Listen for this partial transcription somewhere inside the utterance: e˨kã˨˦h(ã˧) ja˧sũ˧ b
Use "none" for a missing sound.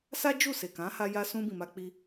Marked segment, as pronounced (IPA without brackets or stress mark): a˧